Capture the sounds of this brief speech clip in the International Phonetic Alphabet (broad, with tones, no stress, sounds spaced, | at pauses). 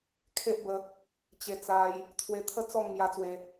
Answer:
kʰ e˦ ʔ b ə˧ | t͡ɕ e˧ t͡s a˧ j | t̪ʰ w e˧ t̪ʰ ə˦ t͡s ɔ˥˧ ŋ m j a˧ t͡s w e˧